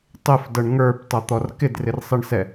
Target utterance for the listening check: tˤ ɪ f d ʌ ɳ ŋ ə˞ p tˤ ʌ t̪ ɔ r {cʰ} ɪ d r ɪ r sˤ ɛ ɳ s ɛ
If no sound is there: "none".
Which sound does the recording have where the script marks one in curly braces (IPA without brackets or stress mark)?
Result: k